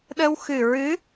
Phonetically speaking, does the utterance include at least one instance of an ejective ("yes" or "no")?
no